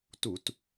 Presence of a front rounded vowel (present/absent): absent